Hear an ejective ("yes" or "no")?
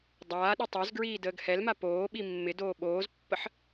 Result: no